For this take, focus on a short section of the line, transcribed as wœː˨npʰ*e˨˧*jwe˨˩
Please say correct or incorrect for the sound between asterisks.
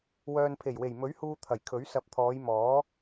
incorrect